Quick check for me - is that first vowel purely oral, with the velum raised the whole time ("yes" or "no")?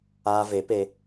yes